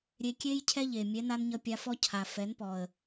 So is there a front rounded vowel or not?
no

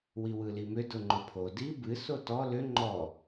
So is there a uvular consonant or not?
no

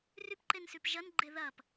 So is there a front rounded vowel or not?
yes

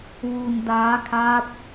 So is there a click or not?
no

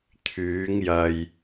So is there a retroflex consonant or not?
no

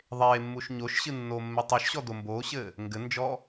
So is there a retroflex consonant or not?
no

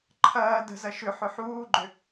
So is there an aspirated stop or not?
yes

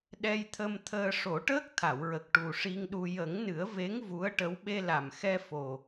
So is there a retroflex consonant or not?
yes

